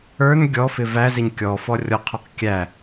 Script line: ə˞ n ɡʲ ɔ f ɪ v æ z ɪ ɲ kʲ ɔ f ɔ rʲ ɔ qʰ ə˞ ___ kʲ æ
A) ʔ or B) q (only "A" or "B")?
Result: B